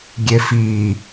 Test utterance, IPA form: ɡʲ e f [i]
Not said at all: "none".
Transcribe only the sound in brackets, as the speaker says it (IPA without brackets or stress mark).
iː